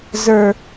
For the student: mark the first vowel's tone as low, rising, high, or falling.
high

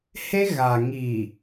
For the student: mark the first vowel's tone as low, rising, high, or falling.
high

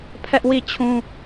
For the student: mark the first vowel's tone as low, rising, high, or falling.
high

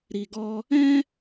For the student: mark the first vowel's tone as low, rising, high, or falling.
low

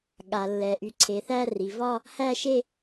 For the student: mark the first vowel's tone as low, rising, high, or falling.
low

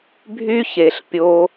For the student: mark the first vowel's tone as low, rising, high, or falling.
high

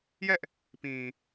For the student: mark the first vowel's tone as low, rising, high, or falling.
high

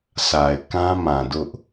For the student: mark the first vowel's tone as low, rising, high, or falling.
low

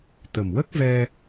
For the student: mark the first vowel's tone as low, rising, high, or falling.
low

